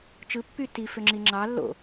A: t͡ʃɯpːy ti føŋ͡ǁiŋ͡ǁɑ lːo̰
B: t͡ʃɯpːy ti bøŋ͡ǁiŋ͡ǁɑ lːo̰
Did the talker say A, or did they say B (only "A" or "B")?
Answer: A